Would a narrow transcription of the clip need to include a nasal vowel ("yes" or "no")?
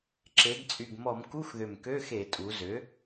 no